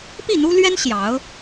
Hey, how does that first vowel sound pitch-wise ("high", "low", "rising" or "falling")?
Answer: falling